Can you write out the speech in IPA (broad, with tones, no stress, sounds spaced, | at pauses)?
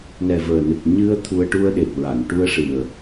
n ɛ˨˩ v əː˨˩ n ɨ˨˩ k̚ ɲ ɨ˧ ə̯ t̪ʰ u˧ ə̯ ʈ u˧ ə̯ ɗ e˨˩ p̚ ɹ a˨˩˨ n ʈ u˧ ə̯ ʂ ɨ˨˩ ə̯